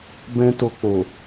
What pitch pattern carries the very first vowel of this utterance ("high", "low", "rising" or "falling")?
high